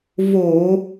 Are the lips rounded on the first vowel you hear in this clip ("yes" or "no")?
yes